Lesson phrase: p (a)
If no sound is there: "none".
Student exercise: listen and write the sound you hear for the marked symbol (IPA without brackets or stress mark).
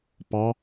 ɑ